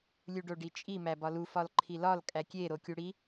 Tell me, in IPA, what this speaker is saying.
lʲ u ɖ o ɖ i t͡ʃʼ i m æ b ɒ l u f ɒ l ǃʰ i l ɒ l kʼ æ kʲ e ɾ o kʲ u ɽ i

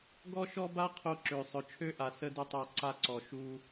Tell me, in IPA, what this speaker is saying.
ɡ ɔ˦ ʃ ɔ˦ b a˦ qʰ o˧ ǁ ø˨ sˤ œ˨ t͡ʃʰ ø˦ ʔ a˨ s ə˦ d ə˦ tˤ a˦˨ ǀ a˧ ǀ ɔ˨ ʃ u˧

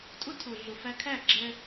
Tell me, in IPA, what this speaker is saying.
tʼ ʊ˥ tʰ ʊ˩ ɮ ʊ˩ f æ˧ kʰ æ˥˩ ɡ͡ǁ ɛ˧

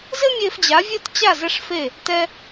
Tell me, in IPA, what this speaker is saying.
z ɘ˥ mʲ e˧ f d͡ʑ a˩˥ vʲ ɘ˥˩ t t͡ɕ a˥˩ z ɛ˥ ʂ f e˥˩ | t ɛ˧

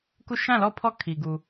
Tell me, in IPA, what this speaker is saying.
k u˦˨ ʃ ã˦˨ l ɔ˦˨ pʰ ɔ˦˨ kʰ i˨ ɡ u˨

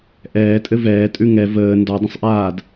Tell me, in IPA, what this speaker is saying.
ʔ ɛː tʼ ɘ v ɛː tʼ ʉ ŋ ɛ v əː n d ɒ dˤ ə̃ sˤ ʔ aː d

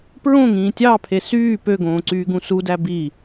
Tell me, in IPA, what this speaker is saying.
p ɹ õ ŋ ĩː tʲ ɑ pʰ e s yː p ø ɡ õː ǀ yː ɡ ũ s u d æ b i

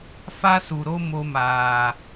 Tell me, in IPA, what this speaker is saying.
f a˦ s u˨ ɾ o˦ m o˧ m aː˨

